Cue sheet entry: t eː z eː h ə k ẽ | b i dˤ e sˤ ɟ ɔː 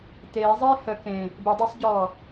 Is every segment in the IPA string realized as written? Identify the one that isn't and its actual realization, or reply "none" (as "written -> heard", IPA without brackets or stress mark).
z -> zˤ